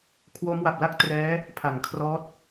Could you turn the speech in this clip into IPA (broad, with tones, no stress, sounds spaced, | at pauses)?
kʰ w o˦˥ m w a˨˩ p̚ l a˥˩ k̚ t r ɛː˦˥ | pʰ a˨˩ ŋ kʰ r ɔː˦˥ t̚